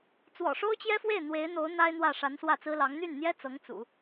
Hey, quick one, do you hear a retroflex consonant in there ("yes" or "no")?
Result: yes